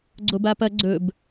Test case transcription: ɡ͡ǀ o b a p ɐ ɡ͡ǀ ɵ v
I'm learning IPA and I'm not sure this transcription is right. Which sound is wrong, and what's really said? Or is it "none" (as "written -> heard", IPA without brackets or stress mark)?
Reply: v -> b